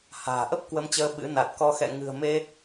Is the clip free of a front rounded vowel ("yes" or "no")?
yes